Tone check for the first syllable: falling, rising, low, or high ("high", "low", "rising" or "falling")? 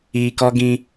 low